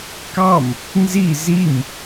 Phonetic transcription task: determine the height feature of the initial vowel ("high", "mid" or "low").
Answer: low